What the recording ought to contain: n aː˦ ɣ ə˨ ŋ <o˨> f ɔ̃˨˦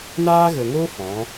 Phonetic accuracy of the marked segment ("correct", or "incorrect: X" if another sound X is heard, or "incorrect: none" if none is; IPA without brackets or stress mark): incorrect: o˦